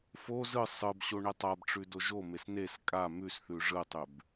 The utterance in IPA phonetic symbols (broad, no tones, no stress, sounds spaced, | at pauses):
f o z ɯ sˤ ɯ b ɕ o ɳ e tˤ a b ʈ͡ʂ ʉ d o ʒ o m e s n e s kʼ a m ʉ s θ ʉ ʐ ɯ tˤ ʉ b